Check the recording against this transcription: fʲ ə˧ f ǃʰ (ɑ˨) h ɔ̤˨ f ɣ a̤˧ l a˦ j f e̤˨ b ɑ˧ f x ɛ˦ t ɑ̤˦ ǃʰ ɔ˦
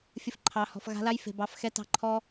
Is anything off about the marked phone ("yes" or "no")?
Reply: no